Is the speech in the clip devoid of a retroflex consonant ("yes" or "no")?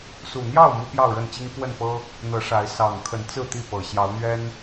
no